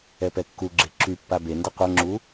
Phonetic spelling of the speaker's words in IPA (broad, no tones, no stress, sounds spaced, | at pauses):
ɛ p ɛ kː u ɡ͡ǁ e ǁ y pː a b e n d e qʷ ɤ ŋ͡ǁ u